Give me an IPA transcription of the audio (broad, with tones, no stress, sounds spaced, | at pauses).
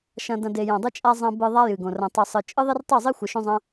ʃ ɐ̃˧ d ɐ̃˧ d e˨ j ɐ̃˨ dˤ ɨ˧ t͡ʃʼ a˧ zˤ ɐ̃˧ b ɨ˧ ðˤ a˦ j ɨ˨ ɡ õ˨ r ɐ̃˨ tˤ ɨ˨ sˤ ɨ˨ t͡ʃʼ ɨ˦ ðˤ e˦ r tˤ i˦˨ zˤ i˦ xʷ ɨ˨ ʃ õ˦ zˤ ɐ̃˦